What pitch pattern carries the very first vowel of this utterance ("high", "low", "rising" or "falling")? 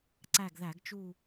falling